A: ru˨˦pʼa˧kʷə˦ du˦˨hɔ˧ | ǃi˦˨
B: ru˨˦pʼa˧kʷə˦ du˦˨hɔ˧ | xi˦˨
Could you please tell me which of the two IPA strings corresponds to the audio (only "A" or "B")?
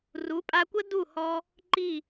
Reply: A